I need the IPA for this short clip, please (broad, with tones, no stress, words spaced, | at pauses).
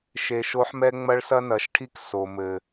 ʃe˧ʃo˦ħmɛ˦ ŋ͡mɐ˦ɭsɐ˦ nɐ˨˦ʃʈʰi˦k so˨mɘ˨